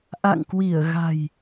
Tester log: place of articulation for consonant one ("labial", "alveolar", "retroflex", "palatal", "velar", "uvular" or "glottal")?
glottal